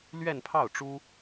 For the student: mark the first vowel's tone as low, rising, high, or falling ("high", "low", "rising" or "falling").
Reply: falling